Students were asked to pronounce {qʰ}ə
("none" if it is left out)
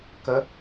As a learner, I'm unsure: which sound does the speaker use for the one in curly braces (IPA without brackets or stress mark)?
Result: k